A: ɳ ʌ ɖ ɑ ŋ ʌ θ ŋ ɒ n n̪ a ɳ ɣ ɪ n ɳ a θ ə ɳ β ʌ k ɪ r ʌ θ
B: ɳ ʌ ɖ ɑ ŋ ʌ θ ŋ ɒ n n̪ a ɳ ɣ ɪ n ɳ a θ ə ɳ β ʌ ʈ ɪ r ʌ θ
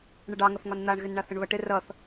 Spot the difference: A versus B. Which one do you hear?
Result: B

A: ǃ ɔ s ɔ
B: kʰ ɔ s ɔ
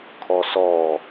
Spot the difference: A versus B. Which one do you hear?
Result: B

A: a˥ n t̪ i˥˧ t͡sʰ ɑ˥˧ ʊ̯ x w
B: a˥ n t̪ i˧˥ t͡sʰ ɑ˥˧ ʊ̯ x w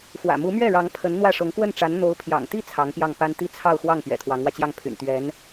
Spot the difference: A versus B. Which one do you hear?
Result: A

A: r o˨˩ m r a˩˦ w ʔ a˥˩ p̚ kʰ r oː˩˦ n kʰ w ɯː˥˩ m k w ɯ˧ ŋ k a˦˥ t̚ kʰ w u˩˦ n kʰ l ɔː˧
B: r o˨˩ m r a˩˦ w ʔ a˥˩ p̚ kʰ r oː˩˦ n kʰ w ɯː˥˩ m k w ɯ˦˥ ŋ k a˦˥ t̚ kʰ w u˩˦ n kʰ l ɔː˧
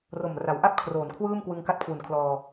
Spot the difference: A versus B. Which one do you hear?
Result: A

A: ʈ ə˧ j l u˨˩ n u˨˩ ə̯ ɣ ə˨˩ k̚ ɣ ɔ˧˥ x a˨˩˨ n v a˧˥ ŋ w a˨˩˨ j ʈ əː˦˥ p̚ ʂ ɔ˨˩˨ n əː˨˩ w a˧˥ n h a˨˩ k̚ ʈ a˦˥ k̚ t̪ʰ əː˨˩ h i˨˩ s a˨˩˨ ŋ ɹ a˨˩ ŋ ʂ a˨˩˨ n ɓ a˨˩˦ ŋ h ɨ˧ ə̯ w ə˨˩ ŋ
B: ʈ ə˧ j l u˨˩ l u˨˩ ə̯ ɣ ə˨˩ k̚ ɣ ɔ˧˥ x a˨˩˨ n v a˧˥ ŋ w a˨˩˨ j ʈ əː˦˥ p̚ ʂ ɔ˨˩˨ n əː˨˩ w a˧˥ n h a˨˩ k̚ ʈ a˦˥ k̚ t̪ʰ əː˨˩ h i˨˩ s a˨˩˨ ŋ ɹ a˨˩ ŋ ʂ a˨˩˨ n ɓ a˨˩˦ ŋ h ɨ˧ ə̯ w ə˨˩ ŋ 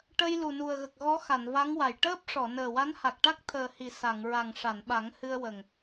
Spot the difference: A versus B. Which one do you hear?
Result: A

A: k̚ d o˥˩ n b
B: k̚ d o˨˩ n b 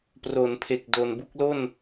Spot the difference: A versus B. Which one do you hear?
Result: B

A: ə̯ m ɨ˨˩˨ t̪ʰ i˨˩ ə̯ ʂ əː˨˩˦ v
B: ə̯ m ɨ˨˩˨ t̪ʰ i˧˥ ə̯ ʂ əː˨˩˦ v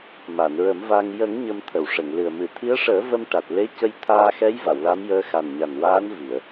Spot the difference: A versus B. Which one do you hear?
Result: B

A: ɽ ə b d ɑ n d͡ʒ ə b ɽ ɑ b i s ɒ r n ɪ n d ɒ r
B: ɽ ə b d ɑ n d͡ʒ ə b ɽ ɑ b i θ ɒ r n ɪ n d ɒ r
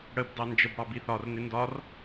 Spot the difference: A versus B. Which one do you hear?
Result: B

